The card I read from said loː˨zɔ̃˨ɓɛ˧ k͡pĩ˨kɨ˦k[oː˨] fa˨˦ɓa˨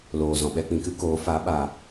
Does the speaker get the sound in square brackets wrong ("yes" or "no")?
yes